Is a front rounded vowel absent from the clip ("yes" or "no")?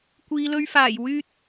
no